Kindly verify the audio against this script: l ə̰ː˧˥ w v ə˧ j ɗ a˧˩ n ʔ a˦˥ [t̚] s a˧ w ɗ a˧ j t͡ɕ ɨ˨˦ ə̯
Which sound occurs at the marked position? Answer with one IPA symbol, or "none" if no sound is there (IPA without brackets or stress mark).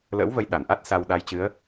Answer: t̚